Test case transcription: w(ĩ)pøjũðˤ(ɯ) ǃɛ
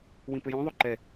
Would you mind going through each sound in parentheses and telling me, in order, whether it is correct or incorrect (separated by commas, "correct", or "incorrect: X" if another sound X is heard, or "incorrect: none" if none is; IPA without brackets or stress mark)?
correct, incorrect: u